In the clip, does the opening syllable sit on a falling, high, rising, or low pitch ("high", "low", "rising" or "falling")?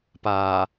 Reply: low